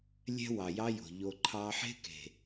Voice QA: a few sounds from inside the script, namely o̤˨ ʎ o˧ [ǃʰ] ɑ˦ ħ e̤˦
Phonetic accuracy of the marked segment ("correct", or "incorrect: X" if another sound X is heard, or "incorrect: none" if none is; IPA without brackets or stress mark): correct